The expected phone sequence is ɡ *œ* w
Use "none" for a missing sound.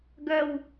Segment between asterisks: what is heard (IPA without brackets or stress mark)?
œ